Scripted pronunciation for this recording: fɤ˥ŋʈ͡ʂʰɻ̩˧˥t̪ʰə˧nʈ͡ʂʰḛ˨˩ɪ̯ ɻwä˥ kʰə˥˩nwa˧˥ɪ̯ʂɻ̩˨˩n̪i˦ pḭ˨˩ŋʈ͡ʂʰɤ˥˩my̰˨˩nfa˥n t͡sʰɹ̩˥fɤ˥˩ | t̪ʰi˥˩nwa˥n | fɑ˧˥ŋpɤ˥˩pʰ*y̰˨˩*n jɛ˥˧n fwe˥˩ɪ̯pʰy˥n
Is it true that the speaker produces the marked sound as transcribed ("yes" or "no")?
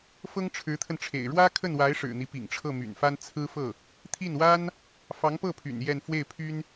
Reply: yes